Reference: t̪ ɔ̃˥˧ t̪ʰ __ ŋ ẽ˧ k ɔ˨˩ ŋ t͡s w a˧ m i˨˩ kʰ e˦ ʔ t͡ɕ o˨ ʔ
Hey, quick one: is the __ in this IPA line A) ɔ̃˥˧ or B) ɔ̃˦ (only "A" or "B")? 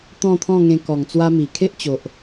A